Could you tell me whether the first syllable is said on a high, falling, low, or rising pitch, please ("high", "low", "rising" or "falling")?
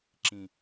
low